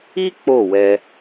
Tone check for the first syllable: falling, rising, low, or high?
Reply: high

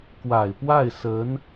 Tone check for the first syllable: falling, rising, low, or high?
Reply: low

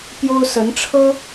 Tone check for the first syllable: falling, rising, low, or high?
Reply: high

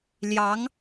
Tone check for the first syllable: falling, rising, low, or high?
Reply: rising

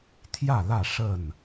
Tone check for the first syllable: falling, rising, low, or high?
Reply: falling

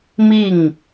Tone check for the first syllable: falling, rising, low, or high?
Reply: falling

